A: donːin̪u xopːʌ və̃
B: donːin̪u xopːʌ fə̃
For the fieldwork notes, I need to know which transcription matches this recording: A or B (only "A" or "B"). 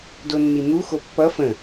B